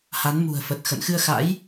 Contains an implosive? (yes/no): no